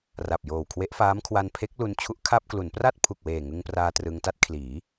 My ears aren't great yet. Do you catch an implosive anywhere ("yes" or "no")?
no